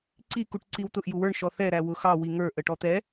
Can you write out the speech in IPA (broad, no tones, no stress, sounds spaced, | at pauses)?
ǀ i k u ʈ ǀ i w t̪ ʊ ʔ j u w ə˞ ɳ ʃ ɔ θ ɛ ɾ æ w ʊ x ɑ w i ŋ ə˞ ʔ ə ʈ ɔ t̪ ɛ